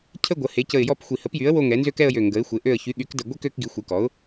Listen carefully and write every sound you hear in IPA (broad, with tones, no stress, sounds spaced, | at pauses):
cʰ ə˥˧ ɡʷ ə˩˥ h e˩˥ c ə˧˩ ɪ̯ j ɔ˥˧ p xʷ i˧˩ h ə˩˥ p j y˩˥ ə̯ w o˥˧ ŋ ɛ˩˥ n z ø˥˧ k ɛ˥˧ ə̯ j ø˧˩ ŋ ɡ ə˩˥ ɪ̯ xʷ e˩˥ ʔ ø˧˩ ə̯ ç y˩˥ ɠ y˩˥ k d ə˧˩ ɡʷ i˥˧ k ø˥˧ k ɡ i˩˥ xʷ i˩˥ k ɔ˩˥ ʊ̯